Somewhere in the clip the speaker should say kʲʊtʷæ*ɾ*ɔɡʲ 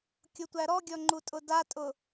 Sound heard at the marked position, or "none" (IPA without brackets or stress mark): ɾ